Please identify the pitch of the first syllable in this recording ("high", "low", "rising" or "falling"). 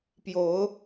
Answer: rising